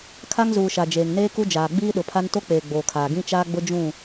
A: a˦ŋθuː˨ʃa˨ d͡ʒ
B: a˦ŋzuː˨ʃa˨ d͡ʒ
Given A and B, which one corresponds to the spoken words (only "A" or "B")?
B